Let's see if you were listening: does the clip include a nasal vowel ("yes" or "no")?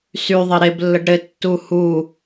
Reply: no